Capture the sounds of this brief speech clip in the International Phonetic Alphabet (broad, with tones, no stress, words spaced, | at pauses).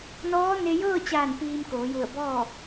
nɔː˧˥ne˧ jɤː˥˨t͡ɕaː˧˩n piː˧mkoː˩˧ju˧˩ə̯bɔː˥˨